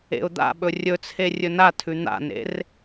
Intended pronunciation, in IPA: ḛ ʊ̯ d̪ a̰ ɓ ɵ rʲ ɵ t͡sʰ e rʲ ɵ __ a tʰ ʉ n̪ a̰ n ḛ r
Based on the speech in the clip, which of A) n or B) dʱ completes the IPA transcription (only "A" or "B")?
A